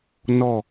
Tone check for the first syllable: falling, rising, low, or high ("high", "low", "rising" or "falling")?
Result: falling